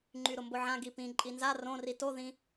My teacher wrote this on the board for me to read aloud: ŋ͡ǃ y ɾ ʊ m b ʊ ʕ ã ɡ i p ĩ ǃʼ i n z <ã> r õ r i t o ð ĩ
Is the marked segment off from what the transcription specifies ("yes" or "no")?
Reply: yes